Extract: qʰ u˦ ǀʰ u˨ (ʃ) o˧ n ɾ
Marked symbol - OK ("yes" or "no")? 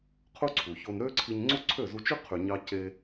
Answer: no